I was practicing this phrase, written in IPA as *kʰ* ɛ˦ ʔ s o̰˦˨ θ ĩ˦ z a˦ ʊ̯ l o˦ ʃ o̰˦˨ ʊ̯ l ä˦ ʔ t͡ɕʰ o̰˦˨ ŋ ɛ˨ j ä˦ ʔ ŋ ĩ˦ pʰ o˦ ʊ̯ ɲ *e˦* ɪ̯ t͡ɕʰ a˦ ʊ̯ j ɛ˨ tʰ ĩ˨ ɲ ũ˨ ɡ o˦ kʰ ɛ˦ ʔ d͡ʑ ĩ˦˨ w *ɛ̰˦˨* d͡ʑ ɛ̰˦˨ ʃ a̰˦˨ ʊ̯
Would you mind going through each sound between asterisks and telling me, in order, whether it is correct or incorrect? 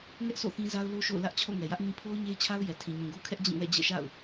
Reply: incorrect: ŋ, correct, correct

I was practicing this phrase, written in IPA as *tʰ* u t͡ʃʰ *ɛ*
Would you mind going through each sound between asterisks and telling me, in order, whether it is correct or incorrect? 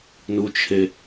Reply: incorrect: n, incorrect: e

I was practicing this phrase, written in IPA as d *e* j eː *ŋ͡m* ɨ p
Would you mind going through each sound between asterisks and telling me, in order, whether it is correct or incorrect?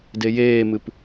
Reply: correct, incorrect: m

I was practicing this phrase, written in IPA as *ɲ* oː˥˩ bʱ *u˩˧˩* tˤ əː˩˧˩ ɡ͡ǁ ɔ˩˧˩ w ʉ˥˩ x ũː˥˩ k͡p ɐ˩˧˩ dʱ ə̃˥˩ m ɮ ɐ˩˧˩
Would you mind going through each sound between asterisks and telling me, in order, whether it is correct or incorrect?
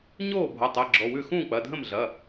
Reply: correct, incorrect: o˩˧˩

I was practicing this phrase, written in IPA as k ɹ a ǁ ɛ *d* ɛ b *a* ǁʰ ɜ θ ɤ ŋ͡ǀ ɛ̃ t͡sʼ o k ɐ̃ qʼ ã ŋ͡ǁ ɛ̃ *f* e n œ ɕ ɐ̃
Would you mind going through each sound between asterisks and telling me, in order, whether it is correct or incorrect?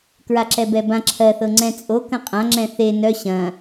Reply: incorrect: b, incorrect: ã, incorrect: θ

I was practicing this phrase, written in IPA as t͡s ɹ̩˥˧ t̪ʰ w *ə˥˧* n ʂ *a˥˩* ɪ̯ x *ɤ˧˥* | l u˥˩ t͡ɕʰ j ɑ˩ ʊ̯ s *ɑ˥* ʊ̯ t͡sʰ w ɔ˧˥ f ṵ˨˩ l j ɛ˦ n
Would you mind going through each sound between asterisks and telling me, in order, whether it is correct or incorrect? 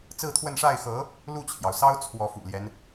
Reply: correct, correct, correct, correct

